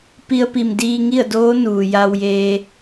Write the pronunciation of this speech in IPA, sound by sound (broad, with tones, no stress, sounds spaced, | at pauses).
p i˧ ə̯ p i˧˩ m d iː˧ ŋ i˥˨ ə̯ d oː˧˥ n uː˩ j a˧ w j eː˧